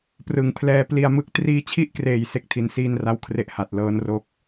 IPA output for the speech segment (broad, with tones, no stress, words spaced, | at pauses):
prɯ˩˦ŋpʰlɛː˧ pli˧a̯mɯ˦˥k̚ triː˧t͡ɕʰi˥˩ʔkreː˨˩j se˥˩k̚tʰi˧nsiː˥˩nra˥˩w kʰre˦˥ʔha˨˩t̚ lɤː˦˥nro˦˥k̚